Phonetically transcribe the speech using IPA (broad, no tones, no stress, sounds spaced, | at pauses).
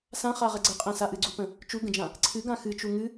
s ã χ a ʁ ɛ ɡ͡ǀ ə qʼ ɛ̃ s a ʔ ɨ ɡ͡ǀ u p ə̃ | t͡ʃ u ɡ ə̃ d͡ʒ ã | ǀʰ ɨ ɡ ã x ɨ t͡ʃ u ŋ ɨ